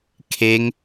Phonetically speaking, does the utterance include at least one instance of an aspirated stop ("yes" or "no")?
yes